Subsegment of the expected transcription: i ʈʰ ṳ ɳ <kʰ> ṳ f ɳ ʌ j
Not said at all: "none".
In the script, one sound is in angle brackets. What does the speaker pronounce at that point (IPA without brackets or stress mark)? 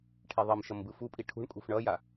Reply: kʼ